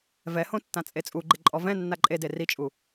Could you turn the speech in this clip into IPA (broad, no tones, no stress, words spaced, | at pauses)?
vɛhõ tːãt͡sʼet͡sʼuɡ͡ǃɪ ǃʼɔvɛ̃nːa ǃʼede rit͡ʃʼu